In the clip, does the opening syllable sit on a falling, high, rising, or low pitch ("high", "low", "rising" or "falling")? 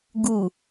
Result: low